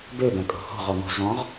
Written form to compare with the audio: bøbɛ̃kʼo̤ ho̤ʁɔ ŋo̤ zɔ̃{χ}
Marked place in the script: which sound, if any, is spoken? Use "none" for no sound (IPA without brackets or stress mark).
ʁ